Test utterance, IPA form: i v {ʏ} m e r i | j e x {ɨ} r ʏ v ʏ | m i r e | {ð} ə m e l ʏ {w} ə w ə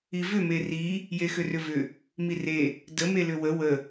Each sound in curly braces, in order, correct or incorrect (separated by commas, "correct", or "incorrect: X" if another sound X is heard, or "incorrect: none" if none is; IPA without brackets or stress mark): correct, incorrect: ʏ, incorrect: d, correct